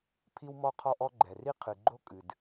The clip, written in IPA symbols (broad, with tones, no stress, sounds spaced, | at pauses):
pʰ i˥ w m ɔ˥ qʰ ɔ˥ ʔ ɔ˥ ɡ͡ǃ ɛ˩ r i˥ qʰ ɨ˩ ɡ͡ǃ o˥ kʼ ɨ˩ d